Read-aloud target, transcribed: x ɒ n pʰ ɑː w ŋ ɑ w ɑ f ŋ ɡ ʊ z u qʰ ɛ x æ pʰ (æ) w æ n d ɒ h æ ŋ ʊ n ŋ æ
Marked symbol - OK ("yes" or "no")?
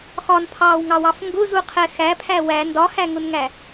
yes